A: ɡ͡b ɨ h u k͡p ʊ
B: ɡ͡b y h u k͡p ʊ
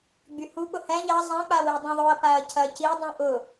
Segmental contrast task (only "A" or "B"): B